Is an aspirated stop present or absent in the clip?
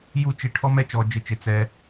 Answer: present